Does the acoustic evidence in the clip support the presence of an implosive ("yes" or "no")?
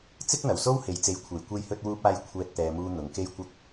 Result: no